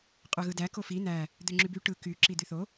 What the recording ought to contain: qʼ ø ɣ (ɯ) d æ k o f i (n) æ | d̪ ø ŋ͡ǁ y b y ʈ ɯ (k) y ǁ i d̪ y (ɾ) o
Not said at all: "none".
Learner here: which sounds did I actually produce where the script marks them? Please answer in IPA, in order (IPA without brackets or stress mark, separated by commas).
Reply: ɯ, n, k, θ